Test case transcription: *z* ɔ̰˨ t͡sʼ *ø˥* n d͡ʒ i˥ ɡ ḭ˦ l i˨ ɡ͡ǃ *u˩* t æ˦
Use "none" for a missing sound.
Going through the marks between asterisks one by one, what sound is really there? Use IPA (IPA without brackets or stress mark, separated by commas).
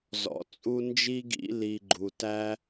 z, u˥, u˩